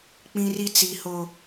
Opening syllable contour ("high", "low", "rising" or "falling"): high